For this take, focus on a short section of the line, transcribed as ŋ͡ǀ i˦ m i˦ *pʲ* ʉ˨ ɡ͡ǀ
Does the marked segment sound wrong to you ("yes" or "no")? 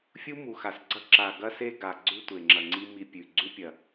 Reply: no